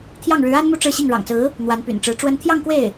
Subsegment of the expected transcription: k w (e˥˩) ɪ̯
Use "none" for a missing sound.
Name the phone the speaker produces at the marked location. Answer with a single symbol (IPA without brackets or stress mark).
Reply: e˥˩